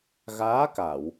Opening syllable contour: rising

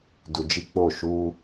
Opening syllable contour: low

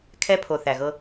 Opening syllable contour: high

